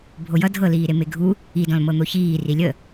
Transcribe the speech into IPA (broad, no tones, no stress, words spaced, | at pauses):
bʱojʌ dʱɤliːɾe meɡʱu | idɔ̃l mɤn̪oçiː rilʲə